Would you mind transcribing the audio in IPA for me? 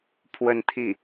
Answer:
pʰ w ə˥˧ n t̪ʰ i˥˩

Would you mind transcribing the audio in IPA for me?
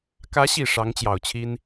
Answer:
k ä˧˥ ɕ i˨˩ ʂ ɑ˧˥ ŋ t͡ɕ j ɑ˨˩ ʊ̯ t͡ɕʰ i˥ n

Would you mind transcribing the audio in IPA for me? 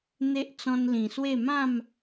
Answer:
n̪ e˦ ʔ t͡s ɔ̃˧ n l ĩ˨˩ s w e˥˧ m ã˥˧ m

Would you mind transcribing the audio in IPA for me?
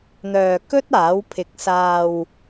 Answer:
n̪ œː˨ k ɵ˥ t̚ aː˨˥ w pʰ ɪ˨˥ k̚ s aː˧ w

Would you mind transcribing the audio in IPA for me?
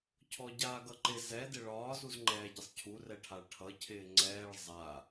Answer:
cʰ ɔ ɟ aː ɡ ʌ ǃ ɪ z ɛ d ɪ ɭ ɒː z u z ŋ͡ǃ ɛː ɟ ɪ sˤ cʰ u r ɛ ʈʰ a ɭ ʈʰ ʌ cʰ ɪː ŋ͡ǀ ɛː ɭ zˤ a

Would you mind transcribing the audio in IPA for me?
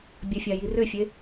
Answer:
bʲ ɵ fʲ a j i r ʏ fʲ e

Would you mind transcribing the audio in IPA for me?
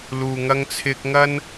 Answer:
l uː˧ ŋ ɐ˥ ŋ t͡sʰ ɪ˥ k̚ ŋ ɐ˥ n

